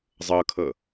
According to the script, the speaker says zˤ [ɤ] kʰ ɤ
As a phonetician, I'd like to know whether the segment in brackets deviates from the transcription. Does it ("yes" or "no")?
no